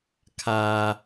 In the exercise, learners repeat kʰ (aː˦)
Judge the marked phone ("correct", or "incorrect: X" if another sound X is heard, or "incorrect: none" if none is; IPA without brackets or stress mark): correct